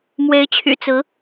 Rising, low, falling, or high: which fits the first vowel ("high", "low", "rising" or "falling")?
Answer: rising